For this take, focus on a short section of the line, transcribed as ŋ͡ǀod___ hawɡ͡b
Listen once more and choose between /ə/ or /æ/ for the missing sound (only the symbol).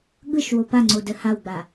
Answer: ə